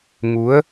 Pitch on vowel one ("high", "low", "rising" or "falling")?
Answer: rising